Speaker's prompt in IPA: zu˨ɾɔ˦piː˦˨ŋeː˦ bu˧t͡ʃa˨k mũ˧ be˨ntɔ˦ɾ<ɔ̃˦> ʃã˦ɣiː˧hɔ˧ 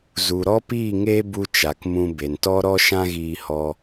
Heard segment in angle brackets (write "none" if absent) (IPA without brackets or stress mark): ɔ˦